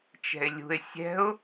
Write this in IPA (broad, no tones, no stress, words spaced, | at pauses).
t͡ʃɛ̤ɪ̯lʲṳɪ̯ sʲɛ̤ʊ̯